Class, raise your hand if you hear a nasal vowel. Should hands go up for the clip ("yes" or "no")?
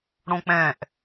yes